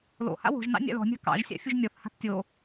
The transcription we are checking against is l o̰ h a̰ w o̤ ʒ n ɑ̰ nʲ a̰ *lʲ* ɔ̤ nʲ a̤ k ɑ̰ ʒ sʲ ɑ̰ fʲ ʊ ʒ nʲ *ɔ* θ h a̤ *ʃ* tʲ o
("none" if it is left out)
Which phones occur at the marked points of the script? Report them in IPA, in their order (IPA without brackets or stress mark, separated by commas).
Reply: l, ɔ, θ